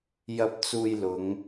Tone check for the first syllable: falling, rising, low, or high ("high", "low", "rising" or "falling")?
rising